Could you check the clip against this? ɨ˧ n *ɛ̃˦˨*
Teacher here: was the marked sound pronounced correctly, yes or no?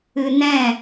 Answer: yes